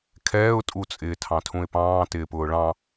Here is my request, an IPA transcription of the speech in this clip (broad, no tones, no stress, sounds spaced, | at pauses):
kʰ ɛː ʊ̯ tʼ u t͡sʼ ɪː tʰ ɑ̃ tʰ ũ ɪ̯ p ɑ̃ː t ɪː p ʊː ɭ ɑ̃